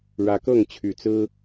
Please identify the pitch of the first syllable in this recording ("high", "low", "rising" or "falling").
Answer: rising